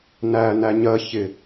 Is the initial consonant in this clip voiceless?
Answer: no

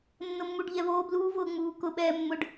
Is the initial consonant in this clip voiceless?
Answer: no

